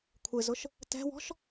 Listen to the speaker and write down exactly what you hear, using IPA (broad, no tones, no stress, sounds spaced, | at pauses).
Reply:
kʷʰ ɪ z ʊ ʃ | t ɛ̤ w ɔ̤ ʃ